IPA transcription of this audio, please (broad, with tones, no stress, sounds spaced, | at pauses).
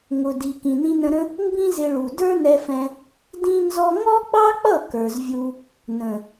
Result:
ŋ ʊ˨ d i˨ k ĩ˨ n ĩ˧ n ə̃˧ ɾ ə̃˦ | m b ĩ˦ z ɪ˧ ɭ u˨ d ə˞˦ n ɛ˧ f ɛ̃˧ | d ĩ˦ n z ɔ˦ ŋ ɔ˦ ɡ͡b ɑ˦ k͡p ʌ˦˨ k ə˞˨ z vʲ u˧ | n ə̃˨